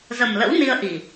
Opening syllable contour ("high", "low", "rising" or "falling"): low